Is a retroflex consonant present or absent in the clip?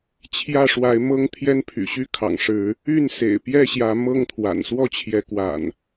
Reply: present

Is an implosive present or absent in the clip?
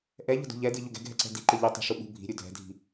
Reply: present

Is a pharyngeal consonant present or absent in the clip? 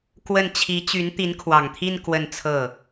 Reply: absent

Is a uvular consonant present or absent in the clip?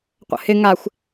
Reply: present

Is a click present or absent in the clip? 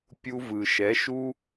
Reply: absent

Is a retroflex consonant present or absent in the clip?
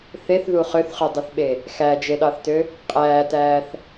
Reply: absent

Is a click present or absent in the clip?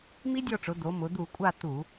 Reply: absent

